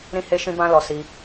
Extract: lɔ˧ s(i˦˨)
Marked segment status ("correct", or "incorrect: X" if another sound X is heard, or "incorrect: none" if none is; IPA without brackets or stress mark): incorrect: i˧